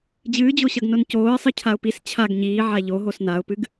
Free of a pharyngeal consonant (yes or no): no